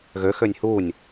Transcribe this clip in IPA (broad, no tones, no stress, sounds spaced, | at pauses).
ɣ ø x ø nʲ h u nʲ